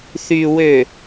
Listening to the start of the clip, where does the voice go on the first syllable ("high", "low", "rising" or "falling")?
low